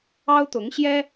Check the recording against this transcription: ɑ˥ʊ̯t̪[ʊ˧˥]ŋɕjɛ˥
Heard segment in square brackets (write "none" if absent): ʊ˧˥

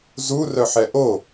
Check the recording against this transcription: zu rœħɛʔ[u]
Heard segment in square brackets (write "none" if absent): o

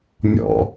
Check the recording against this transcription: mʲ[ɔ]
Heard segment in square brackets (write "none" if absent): ɔ̰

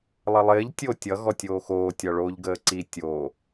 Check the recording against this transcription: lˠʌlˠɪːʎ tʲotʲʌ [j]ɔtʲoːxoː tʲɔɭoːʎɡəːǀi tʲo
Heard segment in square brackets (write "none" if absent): ɣ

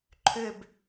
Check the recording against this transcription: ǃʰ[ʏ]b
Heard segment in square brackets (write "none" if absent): ʏ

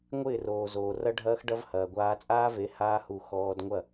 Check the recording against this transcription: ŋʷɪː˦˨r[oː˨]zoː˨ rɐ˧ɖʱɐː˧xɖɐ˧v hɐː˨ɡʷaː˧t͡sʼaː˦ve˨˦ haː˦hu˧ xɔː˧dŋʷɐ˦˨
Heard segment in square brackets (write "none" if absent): oː˨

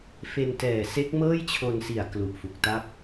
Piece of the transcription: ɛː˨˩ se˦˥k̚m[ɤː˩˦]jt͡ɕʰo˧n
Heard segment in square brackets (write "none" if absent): ɤː˥˩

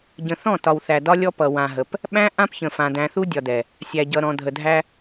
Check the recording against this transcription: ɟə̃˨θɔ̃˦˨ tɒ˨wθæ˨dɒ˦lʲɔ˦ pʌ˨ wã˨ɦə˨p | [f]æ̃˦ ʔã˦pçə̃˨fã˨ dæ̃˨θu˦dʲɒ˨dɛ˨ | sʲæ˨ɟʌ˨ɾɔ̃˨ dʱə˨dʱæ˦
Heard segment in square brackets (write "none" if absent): ɓ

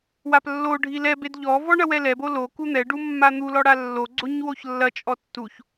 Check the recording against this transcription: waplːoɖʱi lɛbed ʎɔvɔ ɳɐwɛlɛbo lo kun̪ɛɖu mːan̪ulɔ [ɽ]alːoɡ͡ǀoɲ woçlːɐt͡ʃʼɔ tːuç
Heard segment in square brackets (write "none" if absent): ɽ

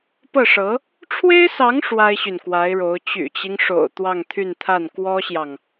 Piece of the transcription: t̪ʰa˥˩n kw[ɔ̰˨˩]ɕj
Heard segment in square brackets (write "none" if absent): ɔ˥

